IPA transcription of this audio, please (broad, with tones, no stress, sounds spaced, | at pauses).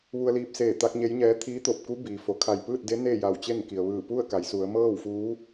ʋ u˧ ə̯ l iː˧ p̚ s eː˧˩ t̪ a˧ k̚ ɲ e˧˥ j ɲ ɛː˧˥ t̪ʰ iː˧˥ t̪ o˧˩ p̚ k u˧˥ b iː˩ f o˩˧ kʰ a˧˩ j p ɯː˥˨ t̚ d e˧˥ n eː˥˨ j a˧˩ w t͡ɕ e˥˨ n k i˩ ə̯ ʋ ɯː˧˩ p u˥˨ ə̯ k a˩˧ j s u˩˧ ə̯ m ɤː˥˨ w f uː˧˥